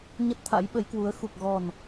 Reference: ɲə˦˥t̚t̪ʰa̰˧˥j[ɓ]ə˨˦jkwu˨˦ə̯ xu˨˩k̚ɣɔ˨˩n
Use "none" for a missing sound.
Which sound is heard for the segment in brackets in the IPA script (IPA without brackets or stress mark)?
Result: ɓ